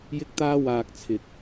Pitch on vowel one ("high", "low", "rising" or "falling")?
high